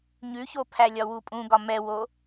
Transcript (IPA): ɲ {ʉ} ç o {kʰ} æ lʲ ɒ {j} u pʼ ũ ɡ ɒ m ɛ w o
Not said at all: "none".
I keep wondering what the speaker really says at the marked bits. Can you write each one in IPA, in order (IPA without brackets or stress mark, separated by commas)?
ʉ, pʰ, w